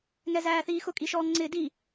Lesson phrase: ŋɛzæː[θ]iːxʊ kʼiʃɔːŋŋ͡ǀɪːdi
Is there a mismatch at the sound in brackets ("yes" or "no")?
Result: no